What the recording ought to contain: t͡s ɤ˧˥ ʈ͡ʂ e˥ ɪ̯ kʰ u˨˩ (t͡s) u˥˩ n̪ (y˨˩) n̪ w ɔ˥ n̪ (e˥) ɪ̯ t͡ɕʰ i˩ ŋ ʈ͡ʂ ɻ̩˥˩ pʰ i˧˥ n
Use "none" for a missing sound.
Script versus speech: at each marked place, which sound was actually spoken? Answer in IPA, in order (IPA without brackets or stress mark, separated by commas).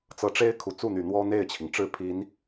t͡s, y˨˩, e˥˩